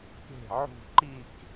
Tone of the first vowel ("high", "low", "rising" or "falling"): falling